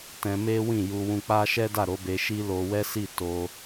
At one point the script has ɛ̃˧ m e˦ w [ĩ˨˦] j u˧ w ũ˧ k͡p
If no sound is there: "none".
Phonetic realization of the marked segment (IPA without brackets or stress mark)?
ĩ˦˨